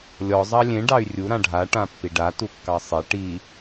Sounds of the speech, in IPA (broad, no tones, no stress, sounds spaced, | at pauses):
lʲ ɔ zˤ ɑ lʲ ẽ ɖ ɑ y̯ rʲ u ɾ ã ɖʱ a ʈ ã pː i ɖ a t u kː ɑ sˤ e ʈ i